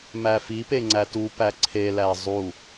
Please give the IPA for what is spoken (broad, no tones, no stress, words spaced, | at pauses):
mæfipe ŋ͡ǀætupæ ǀʰelæ zˤu